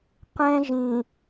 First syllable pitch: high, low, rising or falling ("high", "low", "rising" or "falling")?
high